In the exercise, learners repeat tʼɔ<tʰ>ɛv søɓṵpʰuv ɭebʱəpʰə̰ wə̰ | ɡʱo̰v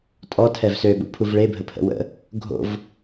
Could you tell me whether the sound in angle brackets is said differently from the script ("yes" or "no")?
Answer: no